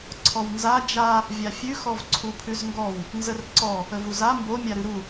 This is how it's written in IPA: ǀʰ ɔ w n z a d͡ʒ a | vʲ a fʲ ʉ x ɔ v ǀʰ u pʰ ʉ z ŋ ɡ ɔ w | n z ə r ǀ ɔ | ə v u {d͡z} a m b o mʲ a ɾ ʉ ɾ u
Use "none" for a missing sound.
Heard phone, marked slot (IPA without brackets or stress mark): z